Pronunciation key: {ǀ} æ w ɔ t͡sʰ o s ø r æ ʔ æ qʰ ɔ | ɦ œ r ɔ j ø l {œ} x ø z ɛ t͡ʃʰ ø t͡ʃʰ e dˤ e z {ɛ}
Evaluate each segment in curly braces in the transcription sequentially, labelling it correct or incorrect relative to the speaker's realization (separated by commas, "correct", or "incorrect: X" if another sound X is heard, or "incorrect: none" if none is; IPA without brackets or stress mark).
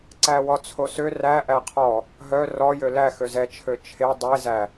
correct, incorrect: æ, incorrect: æ